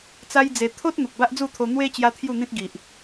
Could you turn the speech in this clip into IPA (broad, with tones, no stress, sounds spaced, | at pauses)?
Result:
t͡s a˦ j d͡z e˧ t̪ʰ o˦ t̚ n̪ u˨ k̚ b a˦ ʔ d͡z u˥˧ t̪ʰ o˧ n̪ w e˧ t͡ɕ j a˦ t̪ʰ j u˥˧ n̪ ĩ˦ t̚ ɡ i˨ ʔ